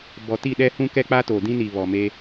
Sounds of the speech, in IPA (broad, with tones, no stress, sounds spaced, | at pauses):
b ɔ˨ t i˦˨ ɗ ɛ˦ h ũ˦ k ɛ˦ k͡p a˦ t o˨ d ĩ˦ n i˨ β ɔ˨ m e˦